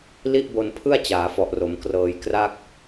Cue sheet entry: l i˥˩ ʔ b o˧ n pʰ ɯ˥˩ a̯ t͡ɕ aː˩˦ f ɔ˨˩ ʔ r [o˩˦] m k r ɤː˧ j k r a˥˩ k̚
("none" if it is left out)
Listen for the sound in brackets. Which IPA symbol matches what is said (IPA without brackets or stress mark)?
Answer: o˩˦